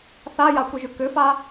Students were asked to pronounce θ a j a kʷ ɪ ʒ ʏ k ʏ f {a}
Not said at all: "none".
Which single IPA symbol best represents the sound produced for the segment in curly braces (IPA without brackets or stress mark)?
a